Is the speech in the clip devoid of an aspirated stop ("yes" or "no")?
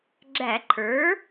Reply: no